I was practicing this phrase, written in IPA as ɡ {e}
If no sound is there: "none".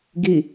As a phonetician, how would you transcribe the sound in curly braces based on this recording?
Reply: i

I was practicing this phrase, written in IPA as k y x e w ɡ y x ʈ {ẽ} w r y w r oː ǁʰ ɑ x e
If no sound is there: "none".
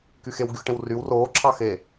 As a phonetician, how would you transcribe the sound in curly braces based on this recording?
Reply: ẽ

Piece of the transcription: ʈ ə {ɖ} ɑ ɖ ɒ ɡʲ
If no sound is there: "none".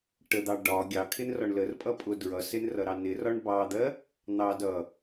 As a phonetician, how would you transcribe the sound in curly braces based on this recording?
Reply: d̪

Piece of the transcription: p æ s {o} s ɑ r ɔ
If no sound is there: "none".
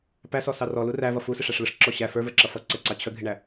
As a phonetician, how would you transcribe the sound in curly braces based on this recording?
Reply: ɔ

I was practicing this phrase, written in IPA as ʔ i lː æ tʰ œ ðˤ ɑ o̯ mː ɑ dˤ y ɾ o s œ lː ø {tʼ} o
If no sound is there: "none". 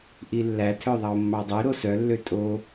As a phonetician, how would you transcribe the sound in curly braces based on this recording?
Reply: tʼ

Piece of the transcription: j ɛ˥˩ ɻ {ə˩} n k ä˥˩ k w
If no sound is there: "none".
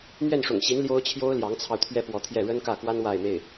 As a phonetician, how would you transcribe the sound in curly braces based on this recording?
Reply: ə˥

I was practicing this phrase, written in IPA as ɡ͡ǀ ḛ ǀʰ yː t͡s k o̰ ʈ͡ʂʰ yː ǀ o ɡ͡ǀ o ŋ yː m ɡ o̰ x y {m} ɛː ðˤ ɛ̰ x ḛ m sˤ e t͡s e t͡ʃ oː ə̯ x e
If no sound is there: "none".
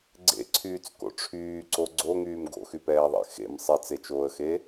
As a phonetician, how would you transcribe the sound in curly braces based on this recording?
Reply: p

